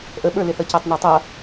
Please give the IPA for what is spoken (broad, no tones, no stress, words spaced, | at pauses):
ʔəɓə˞lɪθʌ cætˤnɛtˤʌ